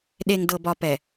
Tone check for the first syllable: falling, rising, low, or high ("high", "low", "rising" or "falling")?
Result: low